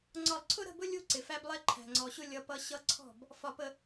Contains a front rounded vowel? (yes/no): no